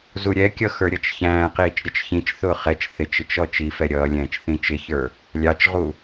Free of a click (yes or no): yes